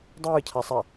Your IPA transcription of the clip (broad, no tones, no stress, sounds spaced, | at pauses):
dˤ ɯː cʰ a sˤ a